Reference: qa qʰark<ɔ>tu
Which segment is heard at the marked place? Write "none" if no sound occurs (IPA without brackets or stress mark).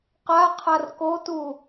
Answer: o